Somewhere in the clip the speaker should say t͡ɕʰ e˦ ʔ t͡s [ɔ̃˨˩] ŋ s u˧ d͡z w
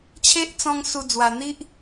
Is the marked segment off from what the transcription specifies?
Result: yes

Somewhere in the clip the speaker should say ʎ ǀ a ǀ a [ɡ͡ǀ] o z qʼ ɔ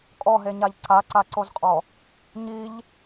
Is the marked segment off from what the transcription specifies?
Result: yes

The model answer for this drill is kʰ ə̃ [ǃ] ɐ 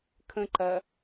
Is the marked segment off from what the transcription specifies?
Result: no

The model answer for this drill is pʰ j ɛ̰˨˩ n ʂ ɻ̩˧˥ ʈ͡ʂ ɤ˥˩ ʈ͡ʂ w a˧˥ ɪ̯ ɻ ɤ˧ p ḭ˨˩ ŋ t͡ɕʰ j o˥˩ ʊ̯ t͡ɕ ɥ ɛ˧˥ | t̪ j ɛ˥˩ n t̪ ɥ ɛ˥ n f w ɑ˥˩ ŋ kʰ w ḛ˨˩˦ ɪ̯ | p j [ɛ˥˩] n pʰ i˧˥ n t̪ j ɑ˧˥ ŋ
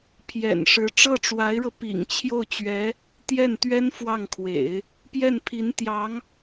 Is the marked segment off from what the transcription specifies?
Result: no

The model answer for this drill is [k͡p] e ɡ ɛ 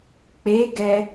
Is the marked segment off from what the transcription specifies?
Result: no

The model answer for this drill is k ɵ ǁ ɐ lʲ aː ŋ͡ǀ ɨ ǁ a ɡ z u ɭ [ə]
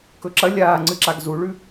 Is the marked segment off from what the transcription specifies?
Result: yes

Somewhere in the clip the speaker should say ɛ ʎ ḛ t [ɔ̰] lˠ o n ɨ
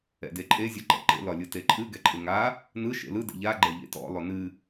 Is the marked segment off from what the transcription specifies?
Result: no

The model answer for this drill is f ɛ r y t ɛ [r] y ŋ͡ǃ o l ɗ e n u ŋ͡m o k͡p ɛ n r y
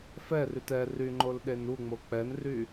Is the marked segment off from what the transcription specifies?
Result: no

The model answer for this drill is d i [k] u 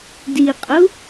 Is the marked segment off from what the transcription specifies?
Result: yes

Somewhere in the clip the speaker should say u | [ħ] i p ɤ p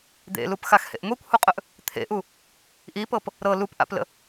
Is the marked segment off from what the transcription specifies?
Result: yes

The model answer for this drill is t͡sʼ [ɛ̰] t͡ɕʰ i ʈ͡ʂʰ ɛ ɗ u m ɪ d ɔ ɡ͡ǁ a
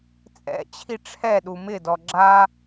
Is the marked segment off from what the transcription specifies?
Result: no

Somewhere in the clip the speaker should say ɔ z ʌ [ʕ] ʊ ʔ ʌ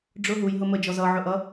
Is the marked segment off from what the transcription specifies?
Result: no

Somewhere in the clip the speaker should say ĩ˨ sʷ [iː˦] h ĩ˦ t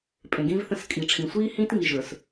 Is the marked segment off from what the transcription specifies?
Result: no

